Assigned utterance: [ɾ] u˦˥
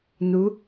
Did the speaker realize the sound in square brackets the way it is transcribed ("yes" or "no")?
no